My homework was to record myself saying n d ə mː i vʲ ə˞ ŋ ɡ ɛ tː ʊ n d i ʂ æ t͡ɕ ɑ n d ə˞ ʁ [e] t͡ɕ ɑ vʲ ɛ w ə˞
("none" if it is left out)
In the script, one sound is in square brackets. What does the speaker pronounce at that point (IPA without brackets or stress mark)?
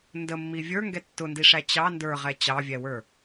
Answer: ɛ